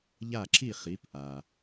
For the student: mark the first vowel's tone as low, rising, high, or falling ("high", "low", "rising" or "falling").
falling